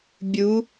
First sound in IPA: bʲ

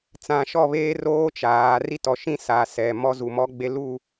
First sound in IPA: t͡s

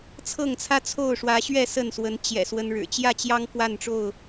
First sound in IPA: t͡sʰ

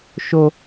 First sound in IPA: ʃ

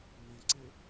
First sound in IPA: n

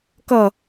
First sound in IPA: k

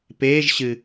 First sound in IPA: p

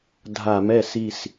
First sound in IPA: dʱ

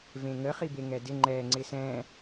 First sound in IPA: v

